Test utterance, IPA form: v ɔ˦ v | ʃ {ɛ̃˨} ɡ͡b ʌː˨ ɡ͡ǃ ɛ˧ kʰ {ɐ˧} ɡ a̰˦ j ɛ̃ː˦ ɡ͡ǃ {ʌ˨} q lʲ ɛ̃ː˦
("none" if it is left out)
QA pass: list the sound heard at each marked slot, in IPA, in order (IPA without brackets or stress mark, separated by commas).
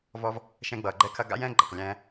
ɛ̃˧, ɐ˧, ʌ˨